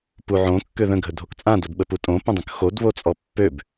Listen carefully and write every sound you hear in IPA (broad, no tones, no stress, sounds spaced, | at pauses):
p u ʕ õ kː ø ð ə̃ ɡʱ ə dʱ o k t͡sʼ ã d o d ɓ ə p u tʼ õ p ə̃ dˤ ə̃ k x o d β o t͡sʼ ɔ pː ø b